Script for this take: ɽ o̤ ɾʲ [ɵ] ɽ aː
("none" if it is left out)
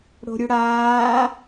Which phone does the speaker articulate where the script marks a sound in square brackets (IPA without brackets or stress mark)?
ɵ